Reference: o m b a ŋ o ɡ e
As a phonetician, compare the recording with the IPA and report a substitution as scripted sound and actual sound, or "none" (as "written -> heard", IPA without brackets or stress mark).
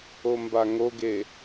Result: none